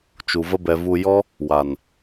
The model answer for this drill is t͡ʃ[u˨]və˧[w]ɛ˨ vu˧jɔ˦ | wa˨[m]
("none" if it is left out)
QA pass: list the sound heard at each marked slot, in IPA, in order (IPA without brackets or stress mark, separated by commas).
u˨, b, n